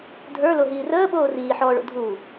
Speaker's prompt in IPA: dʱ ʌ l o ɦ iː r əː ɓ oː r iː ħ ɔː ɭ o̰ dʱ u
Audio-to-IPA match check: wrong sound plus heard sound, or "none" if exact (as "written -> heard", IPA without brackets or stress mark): ʌ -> ə˞